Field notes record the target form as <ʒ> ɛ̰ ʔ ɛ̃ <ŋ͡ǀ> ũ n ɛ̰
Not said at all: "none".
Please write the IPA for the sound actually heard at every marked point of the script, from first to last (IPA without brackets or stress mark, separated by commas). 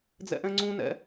d͡z, ŋ͡ǀ